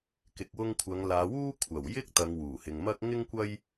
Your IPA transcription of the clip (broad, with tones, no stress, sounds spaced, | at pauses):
k ɪ˨ k̚ w ʊ˧ ŋ kʷʰ ɐ˨˧ ŋ l aː˨˧ w uː˥ kʷʰ ɐ˨˩ w j ɪ˥ k̚ t̪ ɐ˨˧ ŋ w uː˨˩ h ɪ˨ ŋ m ɐ˥ k̚ ŋ ɪ˥ ŋ kʷ ɐ˥ j